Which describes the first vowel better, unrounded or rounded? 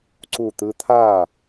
rounded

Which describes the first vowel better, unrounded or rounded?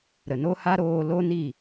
unrounded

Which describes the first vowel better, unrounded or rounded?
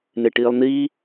unrounded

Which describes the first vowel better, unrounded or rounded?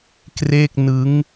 unrounded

